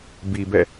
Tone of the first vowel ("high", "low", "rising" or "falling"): low